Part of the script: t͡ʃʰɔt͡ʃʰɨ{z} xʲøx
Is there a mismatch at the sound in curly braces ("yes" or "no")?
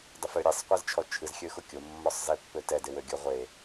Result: no